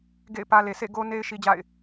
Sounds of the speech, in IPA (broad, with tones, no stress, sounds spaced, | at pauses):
ɡ ḛ˦˨ ɪ̯ p ä˦ l e˨ s ḛ˦˨ ɡ o˦ n e˦ ɪ̯ ʃ i˦ d͡ʑ a̰˦˨ ɪ̯